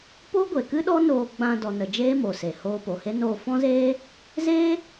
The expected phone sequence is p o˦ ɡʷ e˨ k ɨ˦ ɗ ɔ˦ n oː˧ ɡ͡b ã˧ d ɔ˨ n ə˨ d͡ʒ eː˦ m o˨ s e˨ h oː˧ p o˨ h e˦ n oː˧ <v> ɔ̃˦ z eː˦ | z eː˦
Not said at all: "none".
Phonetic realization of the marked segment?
f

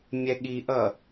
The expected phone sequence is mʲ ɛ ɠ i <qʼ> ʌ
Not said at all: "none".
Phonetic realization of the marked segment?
ʔ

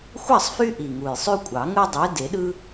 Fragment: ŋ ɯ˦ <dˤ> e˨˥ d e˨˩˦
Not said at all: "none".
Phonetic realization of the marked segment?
dˤ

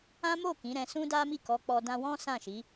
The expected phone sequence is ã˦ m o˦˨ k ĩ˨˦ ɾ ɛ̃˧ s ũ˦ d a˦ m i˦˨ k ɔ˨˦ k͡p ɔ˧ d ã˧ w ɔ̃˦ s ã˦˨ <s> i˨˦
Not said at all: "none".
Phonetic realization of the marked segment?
ʃ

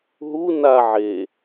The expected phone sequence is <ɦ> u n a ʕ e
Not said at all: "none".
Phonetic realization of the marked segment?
ɦ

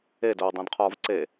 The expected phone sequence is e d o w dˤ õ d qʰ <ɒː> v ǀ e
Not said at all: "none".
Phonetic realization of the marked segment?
ɒː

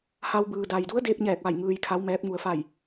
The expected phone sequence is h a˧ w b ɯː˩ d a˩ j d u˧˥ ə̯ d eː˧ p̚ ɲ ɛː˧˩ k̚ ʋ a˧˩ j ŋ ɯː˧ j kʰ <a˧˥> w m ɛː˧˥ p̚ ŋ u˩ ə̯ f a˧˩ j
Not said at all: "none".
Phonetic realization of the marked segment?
a˧˥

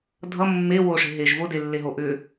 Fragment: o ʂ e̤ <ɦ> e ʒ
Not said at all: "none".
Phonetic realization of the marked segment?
ɦ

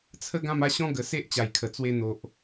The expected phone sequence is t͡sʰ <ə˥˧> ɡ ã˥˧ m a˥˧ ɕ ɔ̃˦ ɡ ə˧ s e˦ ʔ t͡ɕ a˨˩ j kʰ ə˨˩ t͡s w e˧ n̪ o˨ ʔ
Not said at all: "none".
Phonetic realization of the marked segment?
ə˥˧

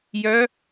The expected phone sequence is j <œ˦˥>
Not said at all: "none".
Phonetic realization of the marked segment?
œ˦˥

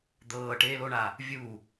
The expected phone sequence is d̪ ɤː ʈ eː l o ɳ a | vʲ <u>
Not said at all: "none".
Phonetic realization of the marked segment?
u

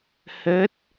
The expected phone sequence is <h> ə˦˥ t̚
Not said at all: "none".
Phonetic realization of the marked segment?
h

